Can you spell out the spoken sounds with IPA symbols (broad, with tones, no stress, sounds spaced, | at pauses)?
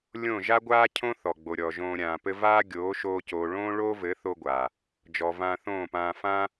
lʲ õ˦˨ ʒ a˦ ɡʷ aː˦ cʰ õ˦ θ ɔ˨ ɡ͡b o˨ ɾʲ ɔ˨ ʒ õː˧ ɾʲ ãː˨ p ɘ˦ v aː˦ ɡʲ oː˨˦ ʃ oː˧ c oː˨ ɭ õː˦ ɭ oː˦ v ɘ˨˦ θ o˦ ɡʷ aː˨ | d͡ʒ ɔ˨ v ãː˧ θ õː˦˨ p ãː˧ f ã˦